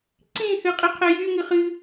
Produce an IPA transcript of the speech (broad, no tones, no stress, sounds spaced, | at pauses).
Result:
ǀ ĩ h ɨ qʼ i qʰ ɛ j y ŋ ɨ χ ɨ